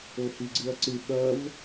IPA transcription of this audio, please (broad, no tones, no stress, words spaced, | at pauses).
ohiɡ͡ǀɨɐ̯ǀɨ ɓɐv